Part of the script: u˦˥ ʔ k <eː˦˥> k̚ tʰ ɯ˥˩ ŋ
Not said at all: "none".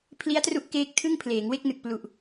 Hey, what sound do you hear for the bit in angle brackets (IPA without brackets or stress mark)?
eː˦˥